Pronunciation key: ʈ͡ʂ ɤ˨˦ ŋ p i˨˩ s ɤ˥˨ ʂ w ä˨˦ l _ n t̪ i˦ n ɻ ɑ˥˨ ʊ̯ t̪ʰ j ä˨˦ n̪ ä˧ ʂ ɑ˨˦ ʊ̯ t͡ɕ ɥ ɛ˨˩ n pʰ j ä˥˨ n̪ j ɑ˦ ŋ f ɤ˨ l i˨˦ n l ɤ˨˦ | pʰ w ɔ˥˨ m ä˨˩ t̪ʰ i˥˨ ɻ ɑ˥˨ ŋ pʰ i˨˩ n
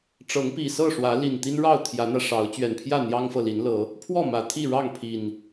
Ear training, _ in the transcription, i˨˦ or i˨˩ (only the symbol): i˨˩